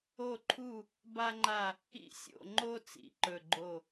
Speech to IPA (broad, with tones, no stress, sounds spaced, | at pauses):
o˥˧ ǃʰ u˥˧ | b a˥ ŋ͡ǃ a˥˧ | ḭ˥ sʲ o̰˥˧ ŋ͡ǃ o˥ t͡s ḭ˥˧ ǃ ɵ˥˧ ɡ͡ǃ o˥˧